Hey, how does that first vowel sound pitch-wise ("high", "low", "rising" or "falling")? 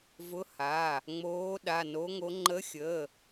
rising